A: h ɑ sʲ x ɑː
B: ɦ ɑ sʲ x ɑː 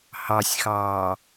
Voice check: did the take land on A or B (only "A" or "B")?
A